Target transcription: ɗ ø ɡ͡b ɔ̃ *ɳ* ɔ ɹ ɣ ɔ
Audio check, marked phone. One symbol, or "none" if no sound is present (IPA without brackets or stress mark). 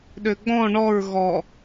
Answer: ɳ